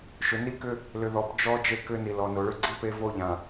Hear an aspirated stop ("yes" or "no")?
no